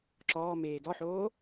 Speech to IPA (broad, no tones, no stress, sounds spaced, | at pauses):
ǁ ɔː m eː d ɔ ħ oː